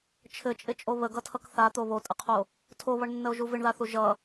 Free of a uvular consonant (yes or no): no